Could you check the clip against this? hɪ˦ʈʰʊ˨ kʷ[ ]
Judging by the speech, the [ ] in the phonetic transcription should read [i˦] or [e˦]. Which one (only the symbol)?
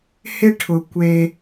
e˦